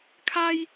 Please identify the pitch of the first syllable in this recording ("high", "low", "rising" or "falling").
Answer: high